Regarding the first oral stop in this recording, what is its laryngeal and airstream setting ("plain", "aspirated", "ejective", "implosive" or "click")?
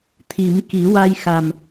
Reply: aspirated